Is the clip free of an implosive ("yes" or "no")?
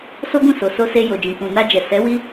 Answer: yes